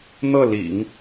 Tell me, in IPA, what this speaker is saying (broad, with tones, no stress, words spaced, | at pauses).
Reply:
n̪ɤ˥˩lḭ˨˩˦ŋ